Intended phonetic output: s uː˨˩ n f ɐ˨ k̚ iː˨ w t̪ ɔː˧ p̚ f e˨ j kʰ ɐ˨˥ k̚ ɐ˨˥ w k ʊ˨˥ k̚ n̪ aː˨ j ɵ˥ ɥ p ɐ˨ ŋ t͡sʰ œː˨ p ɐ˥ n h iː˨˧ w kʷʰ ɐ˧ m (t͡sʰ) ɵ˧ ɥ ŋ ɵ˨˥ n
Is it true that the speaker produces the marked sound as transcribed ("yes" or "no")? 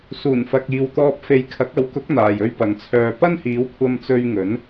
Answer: no